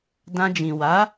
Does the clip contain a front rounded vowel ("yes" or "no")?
no